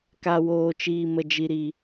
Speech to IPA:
k a˨ w oː˨ t͡ʃ iː˨ m ə˨ d͡ʒ i˨ ɾ i˨

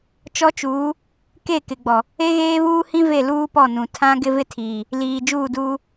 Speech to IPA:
t͡ʃ ɔ˦ t͡ʃ uː˨˦ | k e˦˨ k ɪ˨ ɡ͡b ɔ˨ | e˦ ɣ eː˦ β uː˦ h ĩ˦ v e˦˨ l uː˦ p ɔ˦˨ n ũ˨ tʰ ã˦ ɡ ɪ˦ v ɪ˦ tʰ iː˨ | l iː˨ d͡ʒ uː˦˨ d uː˦

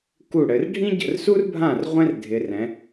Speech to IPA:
k u˥˩ ɽ ɘ˨˦ r ɖʱ ĩ˥ ɟ ə̰˥˩ r s u˥ r bʱ ã˥˩ r ʁʷ ɛ̃˥ r dʱ ɪ˨˦ r ɛ̃˨˦

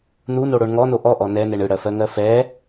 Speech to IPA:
n u n o ɽ o ɳ ŋ ɔ n o ʔ ɔ ʔ ɔ n ɛ n ɛ ɳ ɯ ɽ ɜ f ɜ ŋ ɜ f ɛ

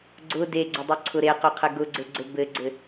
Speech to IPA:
ɡ͡ǀ ʊ d e ɡ͡ǀ ʊ dˤ ʊ ǀʰ ʊ ɾ e q ʊ qʰ ɘ ɡ ʊ ɡ͡ǀ ɘ ɡ͡ǀ ɘ b ɘ ɡ͡ǀ ɘ

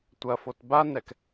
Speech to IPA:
tʷ ɐ f o t b a n ɛ k

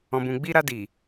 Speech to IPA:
ɔ̃˨ b ũ˨ ɡ͡b i˧ ɾ a˧ d i˨

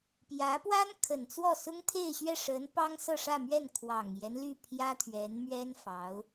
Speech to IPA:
p j ä˧˥ p w a˥ n kʰ ə˨˩ n t͡s w ɔ˥˩ s ʊ˥ ŋ t̪ʰ e˥˧ ɪ̯ ɕ ɥ ɛ˥˩ ʂ ə˧˥ n p ɑ˥ ŋ s ɤ˥˧ ʂ ä˥˧ m ɥ ɛ˥˩ n kʰ w ɑ˨˩ ŋ j ɛ˦ n l y˥˩ pʰ j ä˥ t̪ʰ ɥ ɛ˧˥ n m ɥ ɛ˥ n f ɑ˧˥ ʊ̯

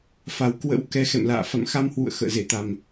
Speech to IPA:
f a˨˩ w k w ə̰˧˥ w k ɛ˨˦ x ɛ̰˧˨ m l a̰ː˧˨ f a̰˧˨ m x a˧ m h w ṵ˧˨ ə̯ x ə̰ː˧˨ z e˧˩ t̪ a˨˩ m

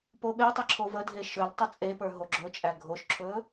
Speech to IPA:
p o ɓ e tˤ ə ǁʰ o v ə dʱ e ʃ ɵ l tˤ ə t͡sʼ e p ə˞ ɦ o ɡ͡ǁ ɵ t͡ʃʼ æ ɡʱ o ʃ ǁʰ ɵ

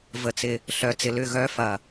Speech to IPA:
v ə˨ t͡s ɪ˨ | ɬ œ˨˦ t͡s ɪ˨ l ʏ˦˨ ɣ œ˦ f ɐ˨

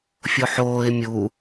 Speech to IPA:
fʲ o ħ oː ɪ̯ mʲ u

